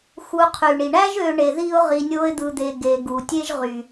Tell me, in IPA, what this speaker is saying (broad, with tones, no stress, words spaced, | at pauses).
xu˨ qʰy˩ɳi˩ɳæ˦ʒ ø˦ ɳe˨ ði˥ʊ̯ ʁi˨nʲo˦ɪ̯d̪ɯ˨d̪e˨ ɡe˨ ɡu˩tʲe˥ʒʁy˩